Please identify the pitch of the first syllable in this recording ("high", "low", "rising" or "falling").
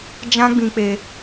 high